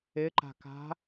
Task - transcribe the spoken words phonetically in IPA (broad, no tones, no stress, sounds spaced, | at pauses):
ɪ ǃ a̤ k a̤